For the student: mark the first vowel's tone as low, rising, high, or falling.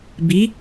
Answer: rising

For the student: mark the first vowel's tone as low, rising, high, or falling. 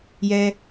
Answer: high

